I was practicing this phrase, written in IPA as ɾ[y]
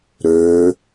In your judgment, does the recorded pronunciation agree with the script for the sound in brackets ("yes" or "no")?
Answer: no